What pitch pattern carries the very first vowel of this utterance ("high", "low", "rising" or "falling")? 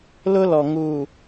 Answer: high